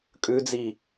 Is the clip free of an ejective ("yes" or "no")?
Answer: no